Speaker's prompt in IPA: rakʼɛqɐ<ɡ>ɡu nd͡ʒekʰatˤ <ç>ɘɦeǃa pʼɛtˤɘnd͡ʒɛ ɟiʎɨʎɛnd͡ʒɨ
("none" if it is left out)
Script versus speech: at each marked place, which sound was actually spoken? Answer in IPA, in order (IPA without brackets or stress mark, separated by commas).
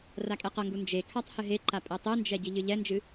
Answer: ŋ, h